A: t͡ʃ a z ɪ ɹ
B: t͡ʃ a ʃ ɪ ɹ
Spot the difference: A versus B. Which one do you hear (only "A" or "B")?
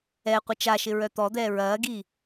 B